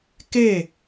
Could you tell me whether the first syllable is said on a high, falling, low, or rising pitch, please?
falling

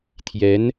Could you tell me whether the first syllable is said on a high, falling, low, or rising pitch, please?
rising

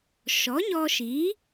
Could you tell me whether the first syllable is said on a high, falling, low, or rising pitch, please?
rising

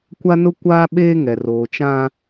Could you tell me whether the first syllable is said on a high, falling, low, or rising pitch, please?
high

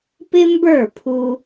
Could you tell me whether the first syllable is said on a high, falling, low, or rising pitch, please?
high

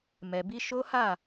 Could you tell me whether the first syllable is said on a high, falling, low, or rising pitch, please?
low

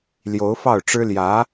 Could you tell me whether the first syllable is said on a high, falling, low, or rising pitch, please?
rising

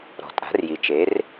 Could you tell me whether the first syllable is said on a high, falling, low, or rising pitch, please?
low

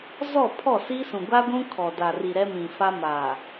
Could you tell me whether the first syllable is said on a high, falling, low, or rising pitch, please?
falling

